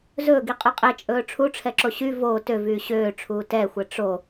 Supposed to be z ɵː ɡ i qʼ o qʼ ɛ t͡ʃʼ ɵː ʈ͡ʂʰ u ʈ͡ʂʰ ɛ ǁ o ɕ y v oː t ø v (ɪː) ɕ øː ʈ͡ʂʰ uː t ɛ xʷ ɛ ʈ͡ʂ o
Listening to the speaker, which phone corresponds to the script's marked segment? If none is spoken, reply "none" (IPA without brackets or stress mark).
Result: yː